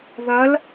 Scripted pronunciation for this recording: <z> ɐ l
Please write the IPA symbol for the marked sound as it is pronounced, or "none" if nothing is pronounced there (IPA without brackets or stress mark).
ð